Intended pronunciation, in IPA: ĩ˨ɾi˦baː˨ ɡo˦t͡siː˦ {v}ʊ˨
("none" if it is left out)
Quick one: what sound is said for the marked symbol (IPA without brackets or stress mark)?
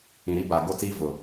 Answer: v